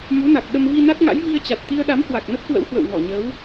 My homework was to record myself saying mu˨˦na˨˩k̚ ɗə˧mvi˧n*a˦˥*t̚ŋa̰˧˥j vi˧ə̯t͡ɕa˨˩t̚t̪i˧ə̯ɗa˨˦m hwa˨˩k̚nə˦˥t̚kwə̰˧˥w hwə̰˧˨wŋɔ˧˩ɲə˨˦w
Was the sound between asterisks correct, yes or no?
yes